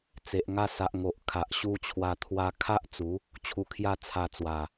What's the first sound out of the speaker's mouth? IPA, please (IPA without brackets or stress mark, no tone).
t͡s